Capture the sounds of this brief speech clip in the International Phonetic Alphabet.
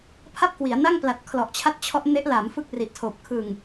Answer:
pʰa˥˩p̚kwi˩˦a̯na˥˩ŋpla˨˩t̚ kʰlɔ˨˩ʔt͡ɕʰa˦˥t̚t͡ɕʰɔ˦˥ʔ ne˦˥ʔ la˩˦m fɯ˥˩k̚ri˨˩ʔtʰoː˨˩p̚ kʰɯ˨˩ŋ

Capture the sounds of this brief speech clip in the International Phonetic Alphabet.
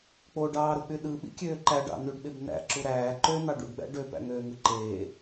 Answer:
k͡poɖɑːɾok͡py ɗɯɓḭkʲøː ǃæɖɑ̰ nyɖɓeb n̪æ̰ǁu ɾæː ǃønɑ ɖṵɖɡ͡bæ̰ ɖøpæ̰ŋøːŋɯ ǃeː

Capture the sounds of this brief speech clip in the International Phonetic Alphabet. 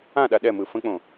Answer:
ãɗa ɗɛmɯ fə̃k͡põ

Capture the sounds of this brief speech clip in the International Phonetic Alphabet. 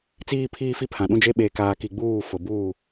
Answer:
t͡siː˨pʰiː˨fi˨ pʰã˨ɗũ˦d͡ʒe˦ ɓeː˨kaː˨ki˨ ɡ͡buː˦˨fʊ˨buː˦˨

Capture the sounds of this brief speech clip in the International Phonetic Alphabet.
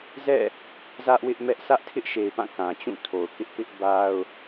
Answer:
zɛ̰˦˨ | zä˦ʔwɪ˦ʔmɛ˦ʔ sʰä˦ʔtʰɪ˦ʔ ʃe˨ɪ̯pã˦˨ kã˨t͡ɕũ˦˨tʰo˨ʊ̯kɪ˦ʔ pɪ˦ʔba˦ʊ̯

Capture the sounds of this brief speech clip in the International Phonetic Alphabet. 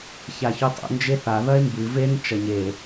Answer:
çaçutˤṵ nd͡ʒeθa ðɐe̯mbɨ ven t͡ʃɐɲe

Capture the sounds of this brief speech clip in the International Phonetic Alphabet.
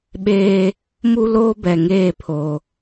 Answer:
ɓeː˦ | mu˦loː˦bɛ˨ŋeː˦˨ pʰo˨

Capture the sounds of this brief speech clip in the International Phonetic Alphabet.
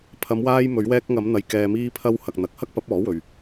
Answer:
pʰɐ˨˧m waː˧jmɵ˨˧ɥwɛː˧k̚ŋɐ˨˧m n̪ɐ˧jkɛː˧ miː˧pʰɐ˧w hɐ˨k̚n̪ɐ˨k̚hɐ˥k̚pɐ˨˥p̚ ɔː˨˥wɵ˨ɥ

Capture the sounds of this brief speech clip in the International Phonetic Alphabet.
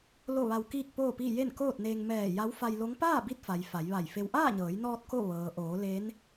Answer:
lo˥˨ʋa˧w kiː˥˨k̚poː˥˨piː˥˨ je˥˨nkoː˥˨t̚neː˧ŋ mɛː˧˩ ja˧˥wfa˧jlo˧˥ŋ paː˥˨bi˧t̚fa˩j fa˩˧jʋa˧˩jfe˧w ʔaː˥˨ɲɤː˩˧jnɔː˧t̚ ko˥˨ ʋɤː˩ʔoː˩˧ le˧˥n

